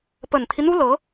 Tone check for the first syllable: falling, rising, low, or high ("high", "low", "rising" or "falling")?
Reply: low